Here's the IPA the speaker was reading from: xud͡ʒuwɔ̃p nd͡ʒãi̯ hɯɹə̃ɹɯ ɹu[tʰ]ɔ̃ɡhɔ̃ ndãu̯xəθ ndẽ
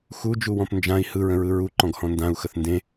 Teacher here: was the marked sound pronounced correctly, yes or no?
no